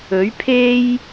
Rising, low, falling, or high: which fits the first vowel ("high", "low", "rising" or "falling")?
rising